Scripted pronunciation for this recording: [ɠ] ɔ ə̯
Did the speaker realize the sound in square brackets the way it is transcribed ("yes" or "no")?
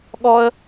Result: yes